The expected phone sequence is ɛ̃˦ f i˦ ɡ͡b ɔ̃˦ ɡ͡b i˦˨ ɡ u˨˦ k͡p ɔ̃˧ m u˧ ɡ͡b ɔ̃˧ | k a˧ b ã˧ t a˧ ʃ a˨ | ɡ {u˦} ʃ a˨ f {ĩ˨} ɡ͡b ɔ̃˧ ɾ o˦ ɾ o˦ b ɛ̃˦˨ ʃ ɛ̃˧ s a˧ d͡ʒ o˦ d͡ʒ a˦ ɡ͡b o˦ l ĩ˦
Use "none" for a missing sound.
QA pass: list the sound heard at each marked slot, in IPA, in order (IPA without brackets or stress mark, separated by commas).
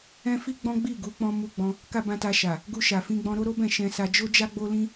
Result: u˧, ĩ˧